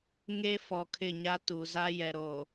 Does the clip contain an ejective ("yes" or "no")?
no